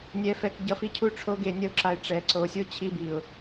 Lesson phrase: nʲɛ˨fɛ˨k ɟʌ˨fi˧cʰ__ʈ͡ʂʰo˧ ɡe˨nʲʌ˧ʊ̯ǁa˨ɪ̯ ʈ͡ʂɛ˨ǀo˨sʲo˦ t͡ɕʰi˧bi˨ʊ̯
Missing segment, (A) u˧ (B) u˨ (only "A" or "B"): A